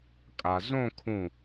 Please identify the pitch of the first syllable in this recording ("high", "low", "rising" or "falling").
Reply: low